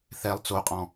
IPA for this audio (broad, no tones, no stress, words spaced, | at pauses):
θɛlˠ t͡soqʼɔ̃